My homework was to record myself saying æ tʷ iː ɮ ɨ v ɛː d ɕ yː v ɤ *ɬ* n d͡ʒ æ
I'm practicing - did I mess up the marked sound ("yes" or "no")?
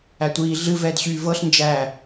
no